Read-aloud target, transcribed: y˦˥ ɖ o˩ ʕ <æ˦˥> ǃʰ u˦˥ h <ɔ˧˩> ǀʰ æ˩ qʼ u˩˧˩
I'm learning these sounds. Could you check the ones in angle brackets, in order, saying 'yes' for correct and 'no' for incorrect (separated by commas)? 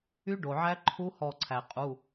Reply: yes, yes